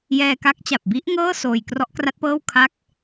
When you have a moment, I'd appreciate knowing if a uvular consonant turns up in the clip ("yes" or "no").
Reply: no